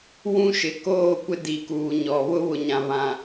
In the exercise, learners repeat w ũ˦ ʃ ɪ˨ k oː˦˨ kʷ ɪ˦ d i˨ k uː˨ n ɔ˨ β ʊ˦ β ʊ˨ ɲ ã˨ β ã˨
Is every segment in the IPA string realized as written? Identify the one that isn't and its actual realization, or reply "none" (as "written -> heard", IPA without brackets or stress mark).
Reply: n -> ɲ